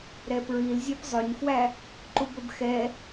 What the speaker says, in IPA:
ɾɛpɹil zʲɛpzˤɵɲfwæ | ǃubɵbxɛ

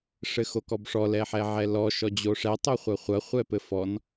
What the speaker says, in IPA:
ʂɘxokɔbʂɔ lɛħɛʕɛlɔ ʃɔd͡ʑoʂɛ tˤoχʷɐχʷɐ χʷɛpɘfɔn

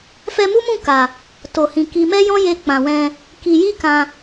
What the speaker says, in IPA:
fɛ˧mu˦mũ˦˨ ka˨ | to˨hĩ˨ki˧ mɛ˦jɔ̃˦je˧ k͡pã˨wɛ̃˧ | ki˧ ji˦ kã˧

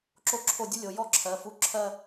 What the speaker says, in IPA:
ǁo˥ǁʰo˥˧ dʲo˥lʲo˩˧ jɔ˥˧ǁʰɜ˩˧fu˧˩ǁʰɜ˥˧

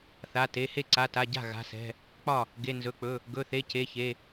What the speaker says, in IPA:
θa˩˧˩te˩˧˩ he˥˩ǀa˩˧˩ta˩˧˩ ɟa̤˥˩ ɣa̤˩˧˩sɛ̤˩˧˩ | k͡pɒ˥˩ | ɡe˩˧˩nzɵ˩˧˩k͡pɵ˩˧˩ | ɡɵ˩˧˩θe˩˧˩ ce˩˧˩çe˩˧˩

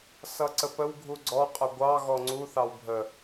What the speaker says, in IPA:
sʌǀəpəw ɡʱuɡ͡ǀɔ qʼəɡʷɑ ɣɔŋ͡ǀu θɑwbʱə

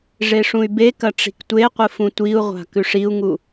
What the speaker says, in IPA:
ʐeʂũy̯bekɐ ʈ͡ʂi̤ktʷeqʷɨ fũtʷiu̯ʁʷa̤ kʉʂiu̯ŋu

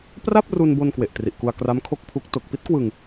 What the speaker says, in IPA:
pra˥˩p̚ru˧nbo˧n kwe˨˩ʔtri˨˩ʔku˧a̯kra˦˥m kʰo˥˩k̚pʰu˦˥k̚ to˨˩k̚pi˦˥t̚kwɯ˧ŋ

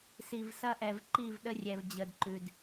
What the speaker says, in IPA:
si˨vsɐ˦ʔɛ˨v ǃi˦˨vɗə˦rʲɛ˨v d͡ʑə˨dǃʉ˨d

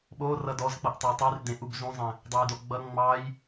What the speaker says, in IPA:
ɓorʌ dɔz k͡pʌʔtˤʌi̯tˤyr dẽʔ ubzũzˤẽ | dˤujdoɡ͡bʌ ŋ͡mɑj

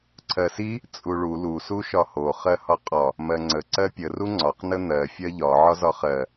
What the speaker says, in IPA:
ǀʰɜsi | t͡sʼuɭu lu suʃɒho χɜhɒqʼɒ | mɜŋ͡ǀə ǀɜpʲə ruŋ͡ǀɒq nən̪ɜ fʲɜʎɒ ʕɒzɒχɜ

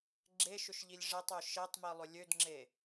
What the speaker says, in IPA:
ɡ͡ǁeʃʏʃʎilʲ ʐetˤø ʃetˤmilˠʏ lʲødŋ͡ǁe

